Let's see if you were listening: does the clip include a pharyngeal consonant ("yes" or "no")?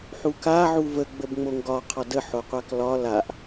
yes